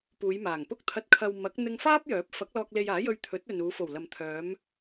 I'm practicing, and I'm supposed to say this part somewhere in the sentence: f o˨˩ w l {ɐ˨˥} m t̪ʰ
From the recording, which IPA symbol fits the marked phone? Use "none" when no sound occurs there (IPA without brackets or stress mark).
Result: ɐ˨